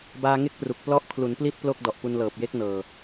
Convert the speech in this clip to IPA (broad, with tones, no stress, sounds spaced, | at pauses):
b aː˧ ŋ e˥˩ k̚ p r u˨˩ k̚ p l ɔ˦˥ ʔ kʰ l u˩˦ n p l i˥˩ t̚ p l o˥˩ k̚ d ɔ˨˩ ʔ p u˧ n l ɤː˨˩ p̚ j e˦˥ k̚ n ɤː˨˩